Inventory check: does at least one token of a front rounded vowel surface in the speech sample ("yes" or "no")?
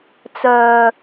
yes